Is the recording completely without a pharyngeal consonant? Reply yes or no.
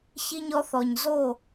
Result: yes